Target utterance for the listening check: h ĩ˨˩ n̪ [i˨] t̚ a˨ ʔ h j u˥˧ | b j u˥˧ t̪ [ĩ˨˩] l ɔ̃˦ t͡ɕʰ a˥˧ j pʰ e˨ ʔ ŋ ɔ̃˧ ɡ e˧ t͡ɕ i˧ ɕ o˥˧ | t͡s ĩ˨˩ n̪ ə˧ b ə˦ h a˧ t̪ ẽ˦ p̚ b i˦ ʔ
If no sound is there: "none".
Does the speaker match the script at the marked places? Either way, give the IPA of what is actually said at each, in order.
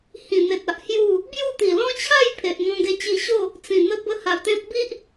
e˨, i˨˩

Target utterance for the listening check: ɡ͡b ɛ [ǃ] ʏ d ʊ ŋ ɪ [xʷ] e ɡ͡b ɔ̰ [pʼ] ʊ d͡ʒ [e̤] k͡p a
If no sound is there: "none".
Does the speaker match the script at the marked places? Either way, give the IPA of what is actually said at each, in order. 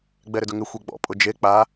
ɾ, xʷ, pʼ, e

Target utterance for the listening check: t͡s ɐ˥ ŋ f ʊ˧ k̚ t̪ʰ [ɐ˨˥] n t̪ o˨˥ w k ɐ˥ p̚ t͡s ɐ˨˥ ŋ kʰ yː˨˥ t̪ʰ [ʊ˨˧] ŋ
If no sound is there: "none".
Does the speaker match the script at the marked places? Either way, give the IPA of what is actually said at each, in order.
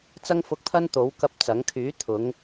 ɐ˥, ʊ˨˧

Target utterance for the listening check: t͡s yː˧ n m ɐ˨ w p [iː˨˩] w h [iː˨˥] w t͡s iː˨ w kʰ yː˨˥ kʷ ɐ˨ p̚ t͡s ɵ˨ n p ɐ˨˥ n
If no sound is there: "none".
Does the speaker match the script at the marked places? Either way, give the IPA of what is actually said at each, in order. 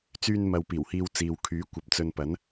iː˨˩, iː˧

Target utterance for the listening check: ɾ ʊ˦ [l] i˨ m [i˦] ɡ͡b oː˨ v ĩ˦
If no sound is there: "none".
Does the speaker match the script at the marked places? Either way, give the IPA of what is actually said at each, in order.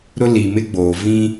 l, ɪ˦

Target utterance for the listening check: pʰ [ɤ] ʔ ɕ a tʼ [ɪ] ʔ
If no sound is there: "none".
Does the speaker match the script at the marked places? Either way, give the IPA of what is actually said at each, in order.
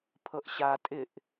ɤ, ɪ

